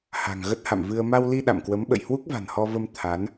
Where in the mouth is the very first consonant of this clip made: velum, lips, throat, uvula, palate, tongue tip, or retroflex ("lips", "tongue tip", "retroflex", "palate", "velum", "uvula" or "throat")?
throat